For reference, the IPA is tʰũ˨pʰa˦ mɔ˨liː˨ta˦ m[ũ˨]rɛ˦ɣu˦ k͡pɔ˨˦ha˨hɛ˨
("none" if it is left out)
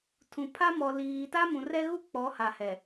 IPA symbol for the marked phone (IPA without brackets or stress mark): ũ˨